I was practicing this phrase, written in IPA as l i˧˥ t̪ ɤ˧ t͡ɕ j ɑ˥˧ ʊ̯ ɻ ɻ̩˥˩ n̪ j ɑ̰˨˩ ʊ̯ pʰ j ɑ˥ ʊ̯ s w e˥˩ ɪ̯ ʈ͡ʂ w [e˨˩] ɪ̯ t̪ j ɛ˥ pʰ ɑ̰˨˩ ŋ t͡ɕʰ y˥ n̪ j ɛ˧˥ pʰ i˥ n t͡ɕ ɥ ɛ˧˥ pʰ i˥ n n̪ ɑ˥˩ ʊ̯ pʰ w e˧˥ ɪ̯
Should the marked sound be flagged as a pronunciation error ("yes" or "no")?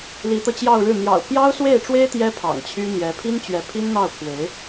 yes